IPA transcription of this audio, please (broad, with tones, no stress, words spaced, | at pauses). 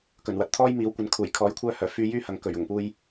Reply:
kɵ˨˩nwɐ˨˥t̚t̪ʰɔː˥j miː˨˥wkʷɐ˨˥nkʰuː˨˩j kʰɔː˨˥jkʷʰœː˧hœː˨˩ fyː˧jyː˥hɐ˨ŋkɵ˨˩ɥ ʊ˨˩ŋpuː˧j